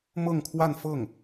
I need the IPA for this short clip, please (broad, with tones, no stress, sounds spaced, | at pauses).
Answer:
m ɤ˥˧ ŋ kʰ w a˥˧ n f ɤ˥˩ ŋ